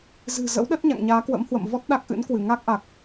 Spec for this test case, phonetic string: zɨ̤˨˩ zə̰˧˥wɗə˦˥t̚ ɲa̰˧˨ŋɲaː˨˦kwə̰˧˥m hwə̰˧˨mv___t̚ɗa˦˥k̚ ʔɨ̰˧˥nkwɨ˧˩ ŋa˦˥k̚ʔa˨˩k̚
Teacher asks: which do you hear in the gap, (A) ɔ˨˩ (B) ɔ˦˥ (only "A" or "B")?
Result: B